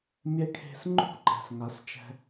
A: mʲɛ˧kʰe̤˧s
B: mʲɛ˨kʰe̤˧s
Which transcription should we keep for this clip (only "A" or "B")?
A